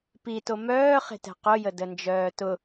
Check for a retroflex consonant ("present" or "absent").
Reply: absent